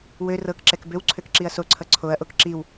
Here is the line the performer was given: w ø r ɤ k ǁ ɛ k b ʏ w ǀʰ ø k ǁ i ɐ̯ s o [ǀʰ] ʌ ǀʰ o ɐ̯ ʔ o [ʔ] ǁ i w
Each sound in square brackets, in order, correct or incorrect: correct, incorrect: k

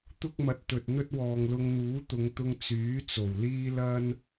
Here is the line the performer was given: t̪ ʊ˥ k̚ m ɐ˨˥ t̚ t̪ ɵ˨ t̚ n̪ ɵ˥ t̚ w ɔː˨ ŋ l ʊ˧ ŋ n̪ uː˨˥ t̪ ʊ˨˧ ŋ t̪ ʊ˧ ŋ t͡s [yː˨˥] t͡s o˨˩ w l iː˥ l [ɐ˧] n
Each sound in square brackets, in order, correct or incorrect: correct, incorrect: ɐ˥

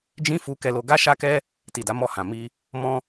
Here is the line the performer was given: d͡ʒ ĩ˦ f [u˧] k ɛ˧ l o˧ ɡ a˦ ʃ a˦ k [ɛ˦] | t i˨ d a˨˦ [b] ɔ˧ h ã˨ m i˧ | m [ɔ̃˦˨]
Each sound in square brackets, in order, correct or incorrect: correct, correct, incorrect: m, incorrect: ɔ̃˧

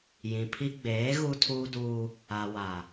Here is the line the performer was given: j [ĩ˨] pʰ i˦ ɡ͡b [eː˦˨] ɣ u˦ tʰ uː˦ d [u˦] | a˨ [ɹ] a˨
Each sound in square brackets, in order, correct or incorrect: correct, incorrect: eː˨˦, incorrect: uː˦, incorrect: w

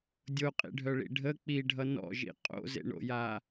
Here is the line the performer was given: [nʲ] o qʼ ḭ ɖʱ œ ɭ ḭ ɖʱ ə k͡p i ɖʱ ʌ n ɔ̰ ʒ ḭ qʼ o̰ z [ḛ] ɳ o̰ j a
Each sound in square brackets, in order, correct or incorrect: incorrect: dʲ, correct

